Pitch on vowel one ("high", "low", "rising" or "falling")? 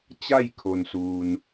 falling